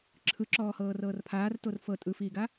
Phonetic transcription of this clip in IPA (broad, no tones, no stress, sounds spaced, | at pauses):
ǁʰ ɯ ǁ ɔː h ɤː r ɤː r pʰ aː r t o r f ɤ tʼ ɯ f iː ɡ a